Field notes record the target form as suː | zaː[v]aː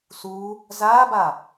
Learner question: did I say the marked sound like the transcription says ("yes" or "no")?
no